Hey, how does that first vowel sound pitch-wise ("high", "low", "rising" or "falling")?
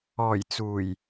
low